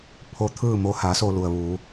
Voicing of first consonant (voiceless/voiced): voiceless